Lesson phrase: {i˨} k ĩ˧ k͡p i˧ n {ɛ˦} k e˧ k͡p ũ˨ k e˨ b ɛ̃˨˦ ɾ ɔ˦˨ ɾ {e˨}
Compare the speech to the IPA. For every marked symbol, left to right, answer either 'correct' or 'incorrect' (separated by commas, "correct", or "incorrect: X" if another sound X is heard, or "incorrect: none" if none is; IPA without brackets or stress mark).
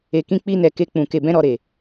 incorrect: e˨, incorrect: ɛ˨, correct